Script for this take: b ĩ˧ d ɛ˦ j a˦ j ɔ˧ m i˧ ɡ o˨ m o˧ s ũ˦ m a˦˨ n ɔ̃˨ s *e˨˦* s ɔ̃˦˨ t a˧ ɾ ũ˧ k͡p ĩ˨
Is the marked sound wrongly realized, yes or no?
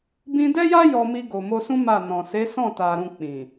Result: no